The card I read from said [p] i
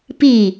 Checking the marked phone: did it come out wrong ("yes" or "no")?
no